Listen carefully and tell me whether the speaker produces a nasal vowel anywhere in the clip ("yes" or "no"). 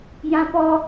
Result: yes